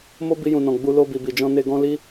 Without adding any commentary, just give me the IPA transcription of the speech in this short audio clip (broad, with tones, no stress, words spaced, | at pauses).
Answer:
mo˦bi˧jũ˨nɔ̃˨ ɡ͡bu˧lo˧bi˨ bi˨d͡ʒɔ̃˧ ne˧ɡɔ̃˦ li˦